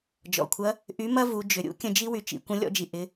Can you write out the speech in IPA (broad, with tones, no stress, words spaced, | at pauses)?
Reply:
d͡ʒɔ̰˩kʷʰɐ˧˥ | ʔy˧˥mɐ˥vu˩˧ d͡ʒʏ˩ɾʲṵ˧˥ kʲə̃˧d͡ʒi˥ wy˩t͡ʃḭ˩˧kʷə̃˧˥ lʲɔ̰˧d͡ʒi˩ ʔɪ˩˧